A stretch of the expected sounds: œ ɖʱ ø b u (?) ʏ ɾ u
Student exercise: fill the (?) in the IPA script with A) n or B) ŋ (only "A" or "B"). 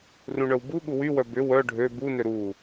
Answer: A